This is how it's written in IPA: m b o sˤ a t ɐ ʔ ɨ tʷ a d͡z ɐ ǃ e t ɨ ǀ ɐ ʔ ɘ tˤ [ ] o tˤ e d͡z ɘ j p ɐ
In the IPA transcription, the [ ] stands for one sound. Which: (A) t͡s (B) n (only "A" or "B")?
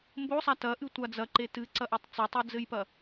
A